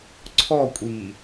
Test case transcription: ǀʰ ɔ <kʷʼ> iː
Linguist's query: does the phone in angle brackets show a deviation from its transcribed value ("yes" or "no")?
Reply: no